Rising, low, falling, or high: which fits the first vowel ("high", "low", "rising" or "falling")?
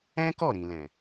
high